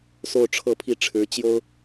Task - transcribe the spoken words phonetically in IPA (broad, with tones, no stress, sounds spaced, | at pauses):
s o˥˧ ʊ̯ ʈ͡ʂʰ ɤ˥˧ pʰ i˥˩ ʈ͡ʂʰ ɻ̩˧˥ t͡ɕ j o˥ ʊ̯